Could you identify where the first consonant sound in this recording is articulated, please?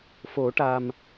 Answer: labial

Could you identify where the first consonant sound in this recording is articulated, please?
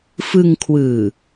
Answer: labial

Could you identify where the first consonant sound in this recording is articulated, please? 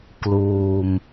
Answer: velar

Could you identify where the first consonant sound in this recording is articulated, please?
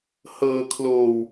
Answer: glottal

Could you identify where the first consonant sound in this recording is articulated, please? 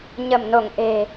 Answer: palatal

